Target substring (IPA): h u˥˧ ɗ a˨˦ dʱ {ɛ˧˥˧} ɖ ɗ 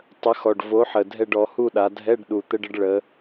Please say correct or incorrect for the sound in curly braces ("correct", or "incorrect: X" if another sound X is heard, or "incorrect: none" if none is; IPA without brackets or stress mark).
correct